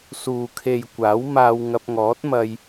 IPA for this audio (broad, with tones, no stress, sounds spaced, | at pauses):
s uː˨ kʰ e˨ j kʷ aː˨˥ w m aː˧ w ŋ ɐ˧ p̚ ŋ ɔː˨˥ t̚ m ɐ˧ j